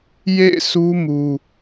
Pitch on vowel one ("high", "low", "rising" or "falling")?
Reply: falling